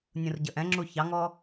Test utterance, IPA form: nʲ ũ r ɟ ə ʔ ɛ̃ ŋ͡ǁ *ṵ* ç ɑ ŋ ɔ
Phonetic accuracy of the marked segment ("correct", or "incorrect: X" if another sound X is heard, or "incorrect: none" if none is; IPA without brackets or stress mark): incorrect: u